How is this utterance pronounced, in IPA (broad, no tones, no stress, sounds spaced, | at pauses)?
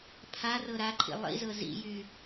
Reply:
pʰ a r ɤ ɾ a ǃʰ ḭ lˠ ḭ z ɤ z ḭ j y